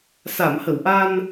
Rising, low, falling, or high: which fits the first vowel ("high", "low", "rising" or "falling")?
low